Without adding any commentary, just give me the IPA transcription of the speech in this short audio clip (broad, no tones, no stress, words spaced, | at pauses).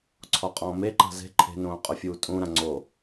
ǀʰɔqʼɔ̃ːmeǃa̤ ze̤ ǃʰe̤nõː qʼʊfʲuːtʼũɾã ŋ͡ǀo